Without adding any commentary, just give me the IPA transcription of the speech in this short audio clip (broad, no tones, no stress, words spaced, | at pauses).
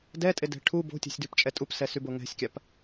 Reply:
dɛtʼedɛ̤ ʈʰu bo̤tʲɛ̤sʲdʉpt͡ʃʼɛ tʼupsɛsybo ŋɛ̤sʲkʲap